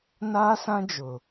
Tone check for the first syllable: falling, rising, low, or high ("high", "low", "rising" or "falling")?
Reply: high